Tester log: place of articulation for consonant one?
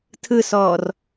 alveolar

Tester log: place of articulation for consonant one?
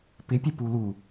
labial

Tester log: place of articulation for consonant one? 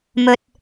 labial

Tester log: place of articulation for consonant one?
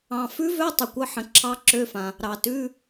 labial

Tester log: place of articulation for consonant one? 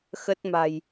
velar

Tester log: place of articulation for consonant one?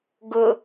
velar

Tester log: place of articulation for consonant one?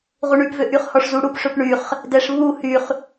uvular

